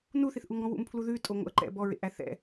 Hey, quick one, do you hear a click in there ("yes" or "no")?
yes